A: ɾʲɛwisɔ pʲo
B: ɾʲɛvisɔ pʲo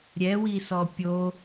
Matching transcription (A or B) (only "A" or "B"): A